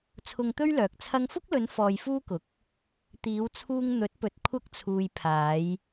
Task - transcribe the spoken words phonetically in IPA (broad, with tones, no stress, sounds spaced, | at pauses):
t͡sʰ ʊ˧ ŋ t̪ ɵ˥ ɥ l œː˨ k̚ t͡sʰ ɐ˧ ŋ f ʊ˥ k̚ l ɵ˨˧ n f ɔː˧ j f uː˥ k ʊ˨ k̚ | t̪ iː˨˧ w t͡sʰ uː˧ ŋ n̪ ɵ˨˥ t̚ p ɵ˨˥ t̚ kʷʰ ɐ˧ k̚ t͡sʰ uː˨ j pʰ aː˨˧ j